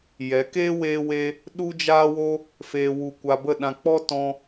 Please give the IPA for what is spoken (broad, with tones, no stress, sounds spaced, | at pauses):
j ɛ˨˦ k eː˦ w eː˦ w eː˦ | ɗ u˦ d͡ʒ aː˦ w o˦ | f eː˧ w u˧ kʷ a˧ b ə˦˨ ɗ ã˧ k͡p ɔ˦ t ɔ̃˧